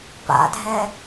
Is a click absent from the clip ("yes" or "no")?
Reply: yes